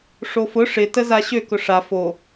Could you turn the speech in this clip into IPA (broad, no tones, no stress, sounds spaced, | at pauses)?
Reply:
ʂ o f ʊ ʂ ɪ t ə z a ɕ ø k ʊ ʂ a f o